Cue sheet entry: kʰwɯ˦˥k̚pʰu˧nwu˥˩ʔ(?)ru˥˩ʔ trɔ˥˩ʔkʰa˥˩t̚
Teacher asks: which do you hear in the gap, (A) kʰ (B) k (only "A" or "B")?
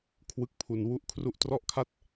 A